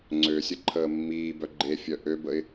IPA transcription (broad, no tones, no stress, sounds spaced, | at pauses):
ŋ͡ǀ ø sʲ ə ǃʰ əː mː iː b œ ɡ͡ǃ e fʲ œ ʔ ø b ə ɪ̯